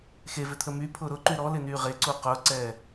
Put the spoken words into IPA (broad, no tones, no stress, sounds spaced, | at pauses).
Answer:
x e v ʏ t̪ʰ ə m y pʰ ʊː ɾ ʊ ǃ y ɾ ɔ l ɪ n yː ʁ e ǀ u q ʊː ǀ ɛː